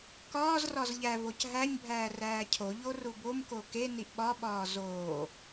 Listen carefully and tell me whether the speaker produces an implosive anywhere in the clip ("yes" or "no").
yes